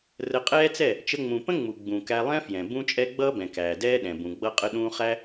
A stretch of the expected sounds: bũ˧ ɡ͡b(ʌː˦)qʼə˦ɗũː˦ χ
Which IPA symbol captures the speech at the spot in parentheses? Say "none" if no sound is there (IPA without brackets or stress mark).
ʌ˦